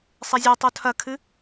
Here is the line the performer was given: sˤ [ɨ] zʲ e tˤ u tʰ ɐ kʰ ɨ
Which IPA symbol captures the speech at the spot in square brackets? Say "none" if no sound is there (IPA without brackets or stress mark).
e